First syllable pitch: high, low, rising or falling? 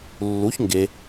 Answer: rising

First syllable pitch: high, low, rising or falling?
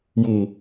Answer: low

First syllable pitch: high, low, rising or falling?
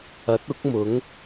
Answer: rising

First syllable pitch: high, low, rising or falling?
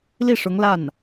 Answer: falling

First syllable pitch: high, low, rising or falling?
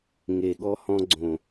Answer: low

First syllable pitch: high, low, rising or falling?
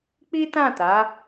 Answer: high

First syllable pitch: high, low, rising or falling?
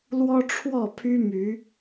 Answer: high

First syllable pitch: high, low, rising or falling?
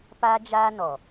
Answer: high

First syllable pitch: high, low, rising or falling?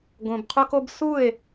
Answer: low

